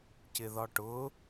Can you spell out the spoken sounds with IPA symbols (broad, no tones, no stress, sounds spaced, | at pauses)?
c ɪ ð ɒ ʈ ʊ